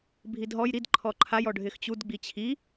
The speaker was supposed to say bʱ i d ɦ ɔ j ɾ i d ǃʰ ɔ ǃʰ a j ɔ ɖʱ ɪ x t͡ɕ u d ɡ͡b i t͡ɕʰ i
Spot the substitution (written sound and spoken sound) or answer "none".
none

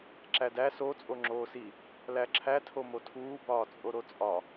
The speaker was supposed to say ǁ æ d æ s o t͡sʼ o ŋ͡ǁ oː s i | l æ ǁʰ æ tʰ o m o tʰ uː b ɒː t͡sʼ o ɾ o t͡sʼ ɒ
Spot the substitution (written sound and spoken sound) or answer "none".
none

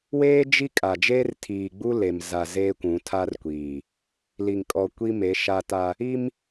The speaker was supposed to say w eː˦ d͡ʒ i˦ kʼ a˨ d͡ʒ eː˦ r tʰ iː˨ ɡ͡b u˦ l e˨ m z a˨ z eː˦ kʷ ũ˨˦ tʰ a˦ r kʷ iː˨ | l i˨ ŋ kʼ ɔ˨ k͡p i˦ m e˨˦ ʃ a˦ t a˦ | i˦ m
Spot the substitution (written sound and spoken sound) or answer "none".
k͡p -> kʷ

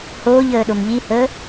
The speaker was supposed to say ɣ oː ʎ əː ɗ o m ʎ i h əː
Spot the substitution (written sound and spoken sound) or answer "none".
ɣ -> h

